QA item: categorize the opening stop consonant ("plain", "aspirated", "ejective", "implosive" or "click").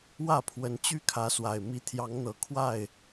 aspirated